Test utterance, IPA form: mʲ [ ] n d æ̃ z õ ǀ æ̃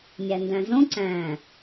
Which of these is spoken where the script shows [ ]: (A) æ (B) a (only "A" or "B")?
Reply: A